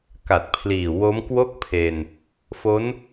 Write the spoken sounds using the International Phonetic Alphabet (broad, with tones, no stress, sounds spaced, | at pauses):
k a˨˩ t̚ pʰ l iː˨˩ w o˦˥ m k w o˥˩ k̚ pʰ e˧ n | f o˦˥ n